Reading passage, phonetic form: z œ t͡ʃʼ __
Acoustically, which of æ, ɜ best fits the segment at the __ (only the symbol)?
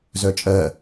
ɜ